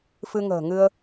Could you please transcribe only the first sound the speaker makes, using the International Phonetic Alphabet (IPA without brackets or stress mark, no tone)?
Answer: f